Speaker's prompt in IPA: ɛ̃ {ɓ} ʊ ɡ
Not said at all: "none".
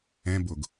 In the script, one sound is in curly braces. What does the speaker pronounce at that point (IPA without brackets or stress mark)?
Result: b